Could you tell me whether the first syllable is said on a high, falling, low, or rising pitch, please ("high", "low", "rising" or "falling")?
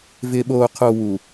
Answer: low